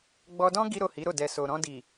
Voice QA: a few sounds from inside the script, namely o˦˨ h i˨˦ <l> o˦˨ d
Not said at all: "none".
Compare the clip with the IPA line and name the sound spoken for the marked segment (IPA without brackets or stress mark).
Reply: ɾ